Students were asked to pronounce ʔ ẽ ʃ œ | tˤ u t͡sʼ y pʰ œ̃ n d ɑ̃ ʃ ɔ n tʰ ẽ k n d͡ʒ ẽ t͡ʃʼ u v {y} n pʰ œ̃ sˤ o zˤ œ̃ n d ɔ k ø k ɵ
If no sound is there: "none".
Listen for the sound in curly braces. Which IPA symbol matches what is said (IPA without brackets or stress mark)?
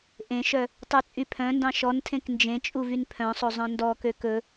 y